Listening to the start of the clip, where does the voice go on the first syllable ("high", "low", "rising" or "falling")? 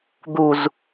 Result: low